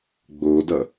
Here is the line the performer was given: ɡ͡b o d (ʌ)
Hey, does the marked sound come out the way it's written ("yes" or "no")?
yes